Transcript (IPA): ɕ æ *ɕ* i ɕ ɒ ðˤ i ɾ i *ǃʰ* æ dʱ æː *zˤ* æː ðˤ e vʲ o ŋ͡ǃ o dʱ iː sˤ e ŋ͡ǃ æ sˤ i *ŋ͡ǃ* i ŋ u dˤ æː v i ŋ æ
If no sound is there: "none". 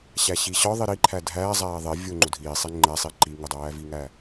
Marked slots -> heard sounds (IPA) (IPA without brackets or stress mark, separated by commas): ɕ, ǃʰ, zˤ, ǃ